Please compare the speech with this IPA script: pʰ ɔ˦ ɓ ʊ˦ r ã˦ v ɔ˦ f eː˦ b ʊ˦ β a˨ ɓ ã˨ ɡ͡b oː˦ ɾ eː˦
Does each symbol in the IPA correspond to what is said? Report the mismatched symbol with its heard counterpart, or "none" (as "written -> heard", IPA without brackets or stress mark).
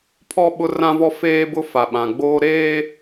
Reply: β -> f